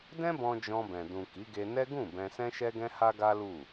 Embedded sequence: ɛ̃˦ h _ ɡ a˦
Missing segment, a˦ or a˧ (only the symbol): a˦